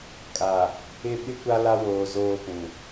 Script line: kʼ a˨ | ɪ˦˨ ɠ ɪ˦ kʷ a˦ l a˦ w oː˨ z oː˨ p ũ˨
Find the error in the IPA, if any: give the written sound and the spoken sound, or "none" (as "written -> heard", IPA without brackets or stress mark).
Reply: ɠ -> ɓ